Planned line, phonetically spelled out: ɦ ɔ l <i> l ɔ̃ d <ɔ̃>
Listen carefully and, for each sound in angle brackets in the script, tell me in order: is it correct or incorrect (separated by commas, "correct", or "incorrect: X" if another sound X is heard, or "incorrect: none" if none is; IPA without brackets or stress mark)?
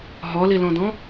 correct, correct